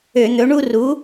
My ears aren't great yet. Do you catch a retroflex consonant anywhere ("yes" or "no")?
yes